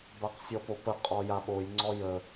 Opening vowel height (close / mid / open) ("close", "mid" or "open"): open